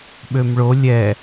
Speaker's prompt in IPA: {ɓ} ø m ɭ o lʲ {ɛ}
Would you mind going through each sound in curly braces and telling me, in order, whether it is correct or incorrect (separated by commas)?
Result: correct, correct